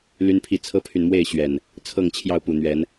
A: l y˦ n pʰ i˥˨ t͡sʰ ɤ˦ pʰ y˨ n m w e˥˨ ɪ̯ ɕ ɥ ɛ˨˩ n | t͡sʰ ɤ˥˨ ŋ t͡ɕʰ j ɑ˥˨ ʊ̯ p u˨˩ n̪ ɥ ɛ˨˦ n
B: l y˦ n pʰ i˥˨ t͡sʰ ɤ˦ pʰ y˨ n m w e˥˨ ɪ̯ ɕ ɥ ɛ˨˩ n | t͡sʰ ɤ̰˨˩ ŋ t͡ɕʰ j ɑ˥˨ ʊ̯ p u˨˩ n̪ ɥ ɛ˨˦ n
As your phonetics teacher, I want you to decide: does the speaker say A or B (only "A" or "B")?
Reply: A